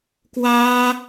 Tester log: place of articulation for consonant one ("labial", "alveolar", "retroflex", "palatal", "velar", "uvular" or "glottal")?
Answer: velar